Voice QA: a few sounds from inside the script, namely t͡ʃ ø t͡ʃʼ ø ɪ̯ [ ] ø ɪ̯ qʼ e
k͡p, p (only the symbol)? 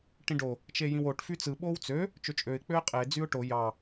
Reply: k͡p